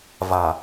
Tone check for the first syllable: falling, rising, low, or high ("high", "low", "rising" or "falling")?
low